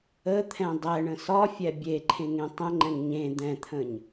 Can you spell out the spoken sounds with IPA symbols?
ə t̪ʰ ɛ̃ dˤ ɛ ɳ ə̃ s ɒ fʲ ɛ bʲ e ǃʰ ẽ ŋ ẽ tˤ ə̃ ŋ͡ǃ ɛ̃ ŋ ɲ ẽ d̪ ɛ̃ t̪ʰ ə̃ ɲ

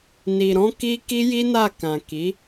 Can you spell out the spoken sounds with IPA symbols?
n i˨ ɾ ɔ̃˧ k i˧ k i˦ j i˦ n a˦˨ k ã˨ k i˨˦

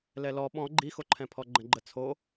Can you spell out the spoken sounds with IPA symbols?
l ɛ l ɔ ɓ ɔ̃ ɡ͡ǃ i x o ǃʰ ɛ̃ pʰ ɔ ɡ͡ǃ ə̃ ɡ͡ǃ ə t͡sʰ o

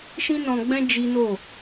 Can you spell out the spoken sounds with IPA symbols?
ʃ ĩ˦ n ɔ̃˧ ɡ͡b ɛ̃˦ d͡ʒ i˦ n o˦˨

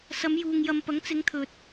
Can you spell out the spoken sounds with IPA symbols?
s ɐ˨˧ m j uː˨ ŋ j ɐ˧ m p ɐ˨˥ ŋ t͡s ɪ˨˧ ŋ t̪ʰ ɵ˨ t̚

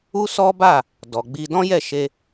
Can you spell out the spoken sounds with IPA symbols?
u˦ s ɔ˦ b a˦˨ | d ɔ˨ ɡ͡b i˧ d ɔ̃˦ j ɛ˦˨ ʃ e˧

